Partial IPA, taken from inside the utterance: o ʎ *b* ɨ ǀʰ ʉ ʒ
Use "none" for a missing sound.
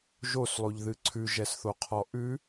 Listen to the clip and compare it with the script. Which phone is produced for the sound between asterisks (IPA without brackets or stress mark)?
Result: ð